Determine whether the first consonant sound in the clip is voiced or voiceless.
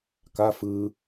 voiceless